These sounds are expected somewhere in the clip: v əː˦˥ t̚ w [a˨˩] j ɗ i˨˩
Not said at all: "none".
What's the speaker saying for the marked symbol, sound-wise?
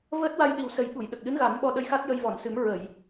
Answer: a˧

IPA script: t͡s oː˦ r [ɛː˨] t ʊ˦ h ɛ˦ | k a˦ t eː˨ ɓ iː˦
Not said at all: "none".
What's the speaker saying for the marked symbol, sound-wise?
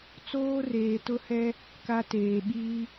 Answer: eː˨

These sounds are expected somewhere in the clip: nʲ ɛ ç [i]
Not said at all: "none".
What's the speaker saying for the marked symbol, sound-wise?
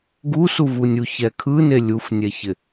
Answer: ɪ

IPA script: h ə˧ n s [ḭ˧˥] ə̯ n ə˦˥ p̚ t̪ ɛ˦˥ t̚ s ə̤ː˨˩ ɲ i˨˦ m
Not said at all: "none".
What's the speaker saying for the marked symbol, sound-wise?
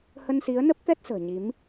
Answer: i˨˦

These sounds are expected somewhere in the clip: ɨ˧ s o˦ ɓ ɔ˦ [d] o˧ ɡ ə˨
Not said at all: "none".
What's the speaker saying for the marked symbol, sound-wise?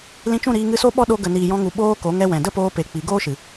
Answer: ɗ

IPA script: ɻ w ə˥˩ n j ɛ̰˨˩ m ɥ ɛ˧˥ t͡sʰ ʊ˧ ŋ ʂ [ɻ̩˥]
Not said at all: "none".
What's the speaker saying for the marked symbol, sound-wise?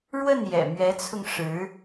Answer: ɻ̩˧˥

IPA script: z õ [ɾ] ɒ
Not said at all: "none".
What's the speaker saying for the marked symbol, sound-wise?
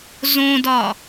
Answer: d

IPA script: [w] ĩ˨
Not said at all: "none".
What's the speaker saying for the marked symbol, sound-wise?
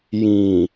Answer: j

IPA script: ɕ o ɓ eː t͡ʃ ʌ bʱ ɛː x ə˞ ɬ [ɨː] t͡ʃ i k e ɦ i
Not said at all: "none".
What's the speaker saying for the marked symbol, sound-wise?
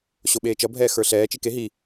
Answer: ɛː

